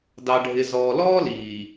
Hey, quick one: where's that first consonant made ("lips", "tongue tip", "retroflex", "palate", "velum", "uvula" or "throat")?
tongue tip